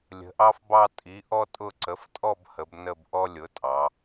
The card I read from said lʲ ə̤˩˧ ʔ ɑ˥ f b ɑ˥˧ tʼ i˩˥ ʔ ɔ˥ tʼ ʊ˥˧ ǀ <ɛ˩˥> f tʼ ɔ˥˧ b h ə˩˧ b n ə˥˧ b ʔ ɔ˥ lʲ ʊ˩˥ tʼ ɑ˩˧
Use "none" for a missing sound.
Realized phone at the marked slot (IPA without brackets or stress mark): ə˩˥